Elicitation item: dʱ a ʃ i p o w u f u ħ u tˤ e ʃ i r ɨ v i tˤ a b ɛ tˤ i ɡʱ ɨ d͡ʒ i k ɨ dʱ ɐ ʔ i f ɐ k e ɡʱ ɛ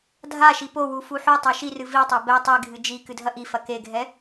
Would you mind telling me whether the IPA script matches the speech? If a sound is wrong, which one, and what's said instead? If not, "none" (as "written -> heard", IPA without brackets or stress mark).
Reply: none